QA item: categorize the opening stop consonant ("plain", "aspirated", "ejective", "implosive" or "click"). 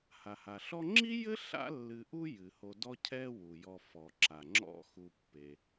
click